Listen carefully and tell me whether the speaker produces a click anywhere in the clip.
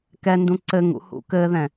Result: yes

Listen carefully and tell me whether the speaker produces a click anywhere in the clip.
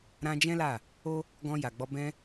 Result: no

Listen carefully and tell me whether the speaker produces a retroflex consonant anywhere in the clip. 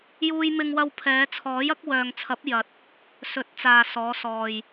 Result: no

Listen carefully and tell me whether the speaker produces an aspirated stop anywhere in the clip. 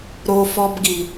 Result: no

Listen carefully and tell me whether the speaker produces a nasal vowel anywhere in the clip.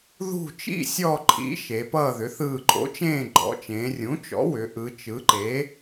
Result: yes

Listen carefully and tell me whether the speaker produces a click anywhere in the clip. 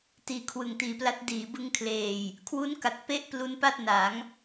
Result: no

